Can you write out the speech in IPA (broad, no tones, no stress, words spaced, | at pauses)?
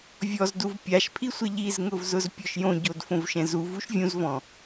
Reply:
vʲɔzduv pʲaʃpʰisʷe ʎizŋʊv zʊzpʲɔʃjõɟod fõvʃɛ̃zuv uʃvʲũzvɔ̃